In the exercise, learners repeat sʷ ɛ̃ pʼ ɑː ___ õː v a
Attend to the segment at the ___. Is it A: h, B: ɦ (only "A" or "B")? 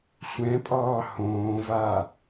A